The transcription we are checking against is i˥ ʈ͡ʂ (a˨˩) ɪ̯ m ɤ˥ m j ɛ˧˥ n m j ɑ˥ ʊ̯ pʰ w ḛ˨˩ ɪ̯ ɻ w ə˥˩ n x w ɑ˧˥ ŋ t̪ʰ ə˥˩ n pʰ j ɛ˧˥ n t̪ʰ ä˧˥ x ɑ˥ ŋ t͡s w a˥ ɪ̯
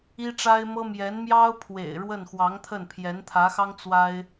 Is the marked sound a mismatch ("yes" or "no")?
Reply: yes